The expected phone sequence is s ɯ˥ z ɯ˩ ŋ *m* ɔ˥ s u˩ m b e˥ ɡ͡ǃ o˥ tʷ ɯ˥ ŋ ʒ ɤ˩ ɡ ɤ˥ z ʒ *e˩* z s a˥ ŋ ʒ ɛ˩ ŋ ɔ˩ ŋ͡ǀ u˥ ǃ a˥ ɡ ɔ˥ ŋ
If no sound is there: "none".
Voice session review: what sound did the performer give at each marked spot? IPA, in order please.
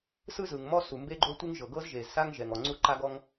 m, e˩

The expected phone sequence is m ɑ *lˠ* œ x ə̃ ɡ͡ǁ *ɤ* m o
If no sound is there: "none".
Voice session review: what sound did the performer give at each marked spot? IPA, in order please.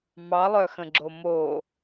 lˠ, o

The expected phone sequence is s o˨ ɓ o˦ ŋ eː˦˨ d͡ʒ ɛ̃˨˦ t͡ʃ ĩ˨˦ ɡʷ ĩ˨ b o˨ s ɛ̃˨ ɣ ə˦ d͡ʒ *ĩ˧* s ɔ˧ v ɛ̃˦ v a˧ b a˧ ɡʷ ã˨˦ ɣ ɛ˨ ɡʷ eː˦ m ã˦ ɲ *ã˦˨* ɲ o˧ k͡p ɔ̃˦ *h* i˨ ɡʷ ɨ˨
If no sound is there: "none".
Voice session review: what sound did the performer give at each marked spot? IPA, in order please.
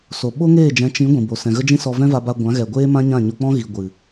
ĩ˦, ã˦˨, ɣ

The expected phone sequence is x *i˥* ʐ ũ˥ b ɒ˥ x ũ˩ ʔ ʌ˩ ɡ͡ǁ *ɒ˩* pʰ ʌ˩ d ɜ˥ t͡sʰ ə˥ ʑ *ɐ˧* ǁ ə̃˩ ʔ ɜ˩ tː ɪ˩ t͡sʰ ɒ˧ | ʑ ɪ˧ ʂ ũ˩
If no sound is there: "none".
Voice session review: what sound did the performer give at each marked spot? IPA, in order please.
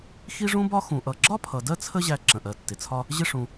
i˥, ɒ˥, æ˧

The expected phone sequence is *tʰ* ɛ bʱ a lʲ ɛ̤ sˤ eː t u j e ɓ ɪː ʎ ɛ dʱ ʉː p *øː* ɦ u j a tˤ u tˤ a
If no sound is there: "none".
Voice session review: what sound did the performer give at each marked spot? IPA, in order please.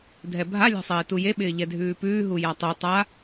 dʱ, ʉː

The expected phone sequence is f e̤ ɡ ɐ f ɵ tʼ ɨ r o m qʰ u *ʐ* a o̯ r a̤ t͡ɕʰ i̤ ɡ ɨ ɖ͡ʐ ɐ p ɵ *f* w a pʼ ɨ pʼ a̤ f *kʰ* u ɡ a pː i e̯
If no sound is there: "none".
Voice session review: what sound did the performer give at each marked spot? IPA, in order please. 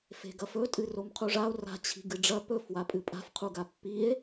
ʐ, f, qʰ

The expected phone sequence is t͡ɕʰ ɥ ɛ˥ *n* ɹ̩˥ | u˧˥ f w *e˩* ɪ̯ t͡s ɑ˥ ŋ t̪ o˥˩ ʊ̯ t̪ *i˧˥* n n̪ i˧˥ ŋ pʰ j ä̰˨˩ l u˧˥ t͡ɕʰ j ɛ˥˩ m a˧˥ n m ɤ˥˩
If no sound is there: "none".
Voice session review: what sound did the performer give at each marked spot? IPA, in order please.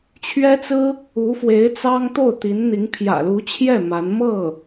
t͡s, e˧˥, i˧˥

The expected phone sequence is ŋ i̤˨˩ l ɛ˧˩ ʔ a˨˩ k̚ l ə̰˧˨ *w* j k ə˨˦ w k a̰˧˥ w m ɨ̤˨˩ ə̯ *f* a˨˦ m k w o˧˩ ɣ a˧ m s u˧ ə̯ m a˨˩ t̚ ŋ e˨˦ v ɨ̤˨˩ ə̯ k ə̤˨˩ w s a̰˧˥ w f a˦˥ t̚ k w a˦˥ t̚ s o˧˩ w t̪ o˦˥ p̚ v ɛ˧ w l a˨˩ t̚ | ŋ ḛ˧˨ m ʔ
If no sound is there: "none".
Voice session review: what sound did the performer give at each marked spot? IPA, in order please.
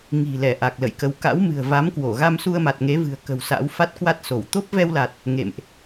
none, v

